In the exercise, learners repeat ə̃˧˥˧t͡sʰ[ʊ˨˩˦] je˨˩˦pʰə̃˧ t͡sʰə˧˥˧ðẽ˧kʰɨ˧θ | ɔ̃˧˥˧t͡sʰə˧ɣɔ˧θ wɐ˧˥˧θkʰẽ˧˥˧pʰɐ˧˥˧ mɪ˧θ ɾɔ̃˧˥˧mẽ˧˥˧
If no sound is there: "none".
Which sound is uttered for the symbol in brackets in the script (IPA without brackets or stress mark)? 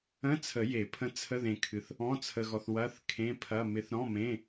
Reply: ə˨˩˦